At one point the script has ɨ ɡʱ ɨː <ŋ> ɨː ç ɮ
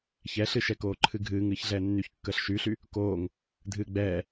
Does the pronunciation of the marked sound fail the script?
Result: no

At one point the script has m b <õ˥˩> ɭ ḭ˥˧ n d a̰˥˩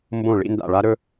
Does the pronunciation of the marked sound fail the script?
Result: no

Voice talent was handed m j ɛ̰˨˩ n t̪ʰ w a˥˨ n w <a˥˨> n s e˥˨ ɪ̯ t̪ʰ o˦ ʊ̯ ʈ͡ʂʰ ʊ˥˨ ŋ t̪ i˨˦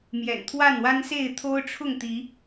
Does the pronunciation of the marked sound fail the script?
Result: yes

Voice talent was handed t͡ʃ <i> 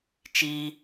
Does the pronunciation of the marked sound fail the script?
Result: no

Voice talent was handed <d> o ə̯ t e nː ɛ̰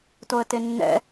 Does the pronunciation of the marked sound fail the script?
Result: yes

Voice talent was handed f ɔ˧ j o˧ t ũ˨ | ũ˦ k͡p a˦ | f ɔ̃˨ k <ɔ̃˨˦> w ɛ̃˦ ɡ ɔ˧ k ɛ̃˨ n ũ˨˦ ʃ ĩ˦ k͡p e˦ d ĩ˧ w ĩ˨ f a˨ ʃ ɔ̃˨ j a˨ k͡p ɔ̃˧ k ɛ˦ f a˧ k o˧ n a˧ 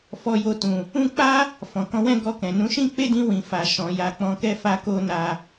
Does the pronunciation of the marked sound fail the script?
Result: no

